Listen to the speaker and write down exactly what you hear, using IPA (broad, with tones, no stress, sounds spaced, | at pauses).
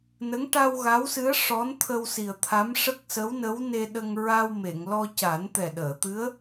n ə˧˥ ŋ ʈ a˧ w ɣ a˧˥ w s ɨ˧˥ ə̯ ʂ ɔ˧˥ n t̪ʰ ə˧ w s i˨˩ ə̯ t̪ʰ a˧˥ m ʂ ə˦˥ k̚ s ə˧˥ w n ə˧˥ w n e˧ ɗ ə˧ ŋ ɹ a˧ w m e˨˩˨ ŋ l ɔ˧ c a˨˩˦ n t̪ ɛ˨˩ ɗ əː˨˩˨ t̪ ɨ˧˥ ə̯